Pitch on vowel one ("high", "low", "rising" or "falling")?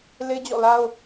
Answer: high